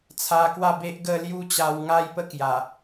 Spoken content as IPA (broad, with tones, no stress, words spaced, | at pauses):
t͡sʰa˧kwa˥˧be˦ʔɡə˥˧ lju˦t͡ɕa˧wŋa˦j pə˦kja˨˩